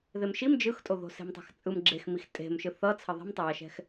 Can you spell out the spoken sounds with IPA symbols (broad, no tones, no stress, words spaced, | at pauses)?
ðemʃim d͡ʒɯxtʼoðo̤ se̤mtˤɛ̤xt͡sʼɯm ɡ͡ǁexmix tʼe̤mʃɯ θʌt͡sʰʌ ðˤɛ̤mtˤʌjʌʃɛ̤x